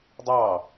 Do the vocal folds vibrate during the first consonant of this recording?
yes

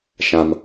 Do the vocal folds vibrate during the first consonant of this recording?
no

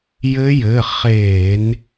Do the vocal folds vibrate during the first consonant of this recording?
yes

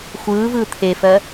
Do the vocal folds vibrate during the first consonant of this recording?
no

